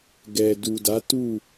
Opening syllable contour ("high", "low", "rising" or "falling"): low